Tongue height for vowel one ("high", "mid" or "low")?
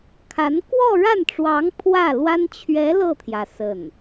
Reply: low